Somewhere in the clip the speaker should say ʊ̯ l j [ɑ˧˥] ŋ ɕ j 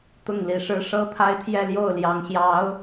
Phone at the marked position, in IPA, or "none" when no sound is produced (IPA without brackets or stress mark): ɑ˧˥